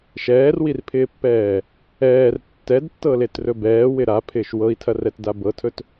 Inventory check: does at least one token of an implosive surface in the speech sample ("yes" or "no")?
no